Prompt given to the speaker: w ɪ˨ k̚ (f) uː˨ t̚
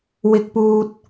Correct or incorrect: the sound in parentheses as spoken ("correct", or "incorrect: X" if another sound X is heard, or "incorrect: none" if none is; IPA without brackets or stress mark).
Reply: incorrect: p